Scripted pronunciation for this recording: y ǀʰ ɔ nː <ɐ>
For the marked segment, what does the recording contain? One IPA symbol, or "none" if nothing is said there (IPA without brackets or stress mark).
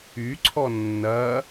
ɐ